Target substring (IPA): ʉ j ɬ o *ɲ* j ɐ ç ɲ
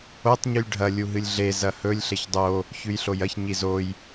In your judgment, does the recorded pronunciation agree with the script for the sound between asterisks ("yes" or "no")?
no